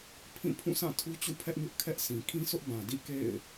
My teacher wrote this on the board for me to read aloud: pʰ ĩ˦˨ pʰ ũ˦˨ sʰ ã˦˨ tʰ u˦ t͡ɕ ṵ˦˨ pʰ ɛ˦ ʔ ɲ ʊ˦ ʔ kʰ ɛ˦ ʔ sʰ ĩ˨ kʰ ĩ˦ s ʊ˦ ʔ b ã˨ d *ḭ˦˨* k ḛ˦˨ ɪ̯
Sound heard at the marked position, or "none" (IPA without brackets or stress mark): ḭ˦˨